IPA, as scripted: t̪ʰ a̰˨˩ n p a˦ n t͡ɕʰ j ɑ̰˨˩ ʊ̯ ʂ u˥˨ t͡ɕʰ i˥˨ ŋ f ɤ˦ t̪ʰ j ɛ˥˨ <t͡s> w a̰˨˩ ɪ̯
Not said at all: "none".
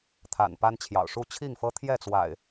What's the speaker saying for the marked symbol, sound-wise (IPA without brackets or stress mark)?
t͡s